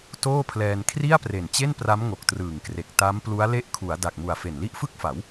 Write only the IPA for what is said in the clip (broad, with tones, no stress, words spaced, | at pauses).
toː˥˩pʰlɛː˧n kʰri˥˩a̯pre˨˩nt͡ɕe˥˩npra˦˥m ŋo˨˩k̚trɯː˨˩ŋkre˨˩k̚ ta˦˥mplu˦˥a̯ le˦˥ʔkʰu˩˦a̯ da˨˩k̚mu˨˩a̯ fe˨˩nli˥˩ʔfɯ˥˩k̚fa˩˦w